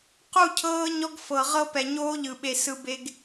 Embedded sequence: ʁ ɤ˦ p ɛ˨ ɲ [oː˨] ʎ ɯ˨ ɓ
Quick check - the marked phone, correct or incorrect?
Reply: incorrect